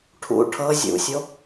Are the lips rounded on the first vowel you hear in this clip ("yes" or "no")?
yes